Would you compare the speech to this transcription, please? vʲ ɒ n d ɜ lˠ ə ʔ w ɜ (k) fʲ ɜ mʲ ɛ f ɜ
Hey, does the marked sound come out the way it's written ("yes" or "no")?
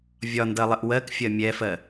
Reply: yes